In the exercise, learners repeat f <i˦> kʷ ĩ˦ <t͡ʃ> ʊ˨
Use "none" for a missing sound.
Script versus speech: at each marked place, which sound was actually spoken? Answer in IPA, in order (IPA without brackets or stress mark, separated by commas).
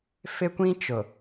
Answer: ɪ˦, t͡ʃ